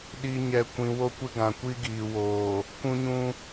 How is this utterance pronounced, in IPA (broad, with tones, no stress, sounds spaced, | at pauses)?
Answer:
ɗ i˨ ɲ ɛ˨ kʷ ĩ˨ w o˦ kʷ ɪ˦ ɡ ã˨ kʷ i˦ ɡ iː˨ w oː˨ | kʷ ũ˦ ɲ ũ˦